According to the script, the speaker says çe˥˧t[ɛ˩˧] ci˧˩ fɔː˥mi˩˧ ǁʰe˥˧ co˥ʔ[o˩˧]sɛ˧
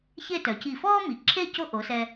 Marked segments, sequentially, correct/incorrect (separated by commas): incorrect, correct